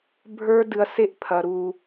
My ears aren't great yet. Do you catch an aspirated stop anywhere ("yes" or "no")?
yes